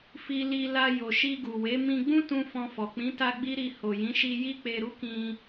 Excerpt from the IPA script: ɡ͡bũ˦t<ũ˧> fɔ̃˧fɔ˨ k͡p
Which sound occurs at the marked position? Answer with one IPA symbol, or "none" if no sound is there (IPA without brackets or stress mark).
ũ˧